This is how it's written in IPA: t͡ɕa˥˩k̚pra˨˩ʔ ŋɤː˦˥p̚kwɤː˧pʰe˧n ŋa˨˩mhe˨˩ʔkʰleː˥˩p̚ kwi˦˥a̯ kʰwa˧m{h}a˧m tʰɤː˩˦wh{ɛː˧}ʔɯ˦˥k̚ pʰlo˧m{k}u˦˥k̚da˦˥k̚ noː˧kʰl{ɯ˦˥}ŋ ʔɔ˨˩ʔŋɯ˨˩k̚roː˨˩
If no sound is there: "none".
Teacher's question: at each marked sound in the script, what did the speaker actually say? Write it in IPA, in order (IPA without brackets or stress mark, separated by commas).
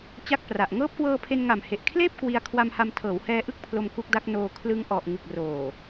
h, ɛː˧, k, ɯ˧